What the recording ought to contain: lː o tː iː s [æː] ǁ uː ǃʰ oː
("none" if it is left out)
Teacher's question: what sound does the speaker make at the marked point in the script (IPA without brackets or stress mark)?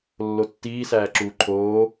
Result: æː